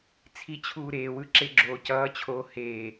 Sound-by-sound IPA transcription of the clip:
t͡sʰi t͡ɕʰuːɾeːwɯ ǁeɡ͡ǁoːcʌːt͡ɕʰoː heː

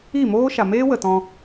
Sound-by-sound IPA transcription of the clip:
i˦˨moː˦ ʃa˨meː˦wə˨tɔ̃˧

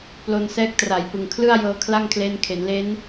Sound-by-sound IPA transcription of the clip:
plo˧nsɛː˦˥k̚tra˨˩jpɯ˨˩ŋ kʰlɯ˥˩a̯ jɤː˧ kʰla˥˩ŋkʰleː˦˥n kʰe˩˦nle˦˥n

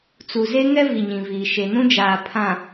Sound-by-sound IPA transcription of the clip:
t͡su˨ze˦ ŋɛ˦vi˨ɲĩ˨viː˨ ʃe˨nũ˦d͡ʒaː˨ pʰã˨

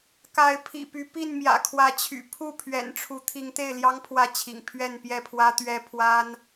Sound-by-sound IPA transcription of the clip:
ka˨˦ɪ̯pʰḭ˨˩py˨˦ pi˥˨nmjä̰˨˩kʰwä˨˦t͡ɕʰy̰˨˩ pʰu˥˨ pʰɥɛ̰˨˩nʈ͡ʂʰu˨˦ t̪ʰi˨˦ŋt̪e˥˨ɪ̯ljɑ˦ŋ pʰwä˥˨t͡ɕʰḭ˨˩ŋpʰɥɛ˥˨n pjɛ˥˨pʰwä˦t̪ɥɛ˦pʰwa˦n

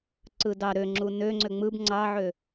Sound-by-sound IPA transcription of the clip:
ǀɯdɑ ɾøŋ͡ǁu nøŋ͡ǀø ŋ͡mɯb ŋ͡ǀɑʕø

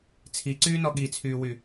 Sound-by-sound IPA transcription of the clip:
t͡sʰiǀyːnɔ ɠit͡sʰyːwy

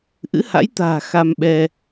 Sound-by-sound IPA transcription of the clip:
ʔɨ̰˧˥ha̰˧˥jt̪a̤ː˨˩ xa˧mɓɛ˧

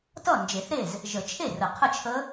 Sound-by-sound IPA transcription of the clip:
tʌ˥˩ nd͡ʒe˨˩˦θɾe˥˩z | ʒə˨˩˦t͡ʃʰe˥˩rə˨˩˦ qʰə˥˩t͡ʃʰə˦˥

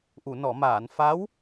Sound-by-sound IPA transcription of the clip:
ʔu˨˩˨nɔ˨˩˨maː˨˩˨n fa˧˥w

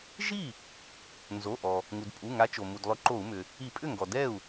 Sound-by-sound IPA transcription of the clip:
ʒi˥˩ | nzo˩˧˩ʔɔ˩ | ŋu˩dpʼu˩˧˩ŋa˨˦ t͡ʃo˩ mu˩dlˠʏ˨˦ǃo˧˩˧u̯mʏ˩ | i˧˩˧pʼʏ˥˩ŋɡɔ˩ dɛ˥˩u̯

